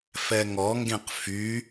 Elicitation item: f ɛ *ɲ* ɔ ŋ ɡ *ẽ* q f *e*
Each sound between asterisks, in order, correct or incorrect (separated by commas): incorrect, correct, incorrect